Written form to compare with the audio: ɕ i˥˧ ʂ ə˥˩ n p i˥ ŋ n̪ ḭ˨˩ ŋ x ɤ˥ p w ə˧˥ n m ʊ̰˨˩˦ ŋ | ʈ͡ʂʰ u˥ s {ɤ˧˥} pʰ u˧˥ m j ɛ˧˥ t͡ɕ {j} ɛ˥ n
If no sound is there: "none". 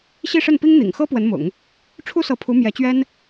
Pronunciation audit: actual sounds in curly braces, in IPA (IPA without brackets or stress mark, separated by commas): ɤ˧˥, ɥ